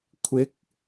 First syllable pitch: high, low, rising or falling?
rising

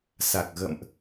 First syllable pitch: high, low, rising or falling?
low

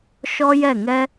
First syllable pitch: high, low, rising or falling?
high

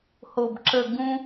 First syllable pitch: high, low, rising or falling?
low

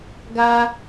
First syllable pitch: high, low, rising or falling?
high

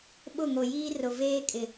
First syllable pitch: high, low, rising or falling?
falling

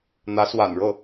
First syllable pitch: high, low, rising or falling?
rising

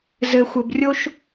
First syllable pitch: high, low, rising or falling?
low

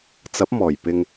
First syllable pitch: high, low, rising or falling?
rising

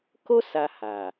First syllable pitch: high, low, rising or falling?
high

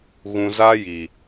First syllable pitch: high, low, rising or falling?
low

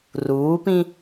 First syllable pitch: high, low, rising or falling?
rising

